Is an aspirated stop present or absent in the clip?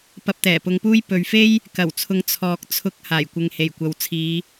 present